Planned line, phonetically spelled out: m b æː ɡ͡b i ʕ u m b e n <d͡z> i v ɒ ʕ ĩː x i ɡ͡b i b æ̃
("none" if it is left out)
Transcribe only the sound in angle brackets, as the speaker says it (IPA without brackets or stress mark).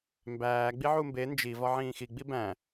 d͡ʒ